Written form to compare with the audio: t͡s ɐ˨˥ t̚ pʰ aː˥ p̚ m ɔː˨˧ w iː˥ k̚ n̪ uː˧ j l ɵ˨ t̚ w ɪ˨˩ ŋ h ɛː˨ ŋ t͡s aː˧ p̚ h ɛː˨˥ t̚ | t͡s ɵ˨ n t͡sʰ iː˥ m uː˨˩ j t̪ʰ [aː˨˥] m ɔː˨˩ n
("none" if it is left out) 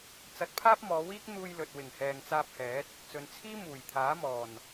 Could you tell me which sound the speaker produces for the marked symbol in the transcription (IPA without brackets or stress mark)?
aː˨˥